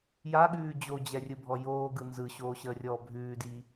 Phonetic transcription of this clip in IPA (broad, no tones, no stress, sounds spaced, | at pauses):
j a ɠ ʉː d͡ʑ o d͡ʑ ɛ rʲ ɯ bʱ ɔ j oː ɡ ɯ n z ɯ ɕ oː ɕ əː rʲ ɔː bʱ ʉː d i